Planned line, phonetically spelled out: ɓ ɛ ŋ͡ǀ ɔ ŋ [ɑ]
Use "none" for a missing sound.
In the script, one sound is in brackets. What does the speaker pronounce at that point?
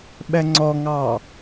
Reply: ɑ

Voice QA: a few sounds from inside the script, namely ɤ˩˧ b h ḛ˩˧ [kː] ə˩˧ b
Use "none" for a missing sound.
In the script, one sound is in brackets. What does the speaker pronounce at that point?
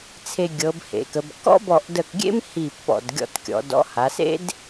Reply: k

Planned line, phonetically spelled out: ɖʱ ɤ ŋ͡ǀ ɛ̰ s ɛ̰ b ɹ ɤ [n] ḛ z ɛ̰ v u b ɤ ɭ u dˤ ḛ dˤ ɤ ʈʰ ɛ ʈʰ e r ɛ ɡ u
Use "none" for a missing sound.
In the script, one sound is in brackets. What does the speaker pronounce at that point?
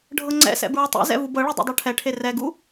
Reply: tˤ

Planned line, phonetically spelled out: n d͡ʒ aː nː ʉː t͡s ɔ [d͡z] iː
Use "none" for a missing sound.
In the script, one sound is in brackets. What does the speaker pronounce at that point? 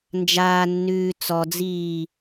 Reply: d͡z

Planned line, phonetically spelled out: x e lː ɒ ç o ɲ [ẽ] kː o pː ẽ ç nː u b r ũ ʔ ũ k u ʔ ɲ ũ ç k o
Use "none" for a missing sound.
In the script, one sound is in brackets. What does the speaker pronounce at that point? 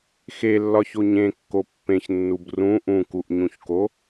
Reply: ẽ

